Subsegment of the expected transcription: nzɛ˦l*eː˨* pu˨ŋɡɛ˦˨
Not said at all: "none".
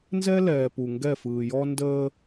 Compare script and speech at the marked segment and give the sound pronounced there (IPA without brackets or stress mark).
ɛː˨